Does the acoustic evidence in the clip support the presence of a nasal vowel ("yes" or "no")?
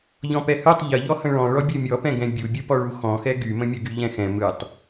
yes